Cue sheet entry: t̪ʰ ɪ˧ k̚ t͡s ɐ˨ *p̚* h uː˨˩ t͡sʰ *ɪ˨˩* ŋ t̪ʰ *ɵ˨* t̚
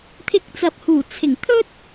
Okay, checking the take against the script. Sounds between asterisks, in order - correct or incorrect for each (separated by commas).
correct, correct, incorrect